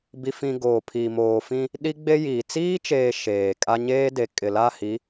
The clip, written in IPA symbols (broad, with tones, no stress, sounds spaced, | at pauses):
b i˨ f ĩ˨ ɡ oː˨ pʰ i˨ m oː˨ f ĩ˦ | ɗ i˦ ɡ͡b e˦ j iː˨ t͡s iː˦ t͡ʃ eː˨ ʃ eː˨ kʼ a˦ ɲ eː˦ d e˨ kʼ ɪ˨ l a˦˨ h i˨˦